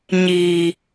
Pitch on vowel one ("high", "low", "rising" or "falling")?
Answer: low